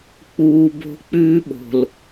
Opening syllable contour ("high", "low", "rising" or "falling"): low